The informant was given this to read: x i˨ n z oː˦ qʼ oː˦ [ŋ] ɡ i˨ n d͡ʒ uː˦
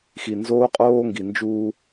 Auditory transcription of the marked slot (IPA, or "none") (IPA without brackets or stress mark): ŋ